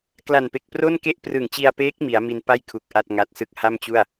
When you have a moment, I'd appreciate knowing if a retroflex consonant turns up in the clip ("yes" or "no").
no